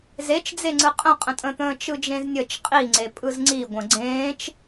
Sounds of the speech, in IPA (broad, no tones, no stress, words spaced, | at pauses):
zet͡ʃd͡zeŋ͡ǀɯ qʼə̃qʼə̃tʼə̃t̪ə̃ː t͡ʃɯd͡ʒẽznʲət͡ʃ qʼiŋ͡ǀe pʼɯzŋ͡ǀiɡʷə̃ ɡ͡ǀẽːt͡ʃ